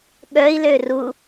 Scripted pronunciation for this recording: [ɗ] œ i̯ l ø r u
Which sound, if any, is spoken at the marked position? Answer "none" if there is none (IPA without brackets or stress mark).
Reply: ɠ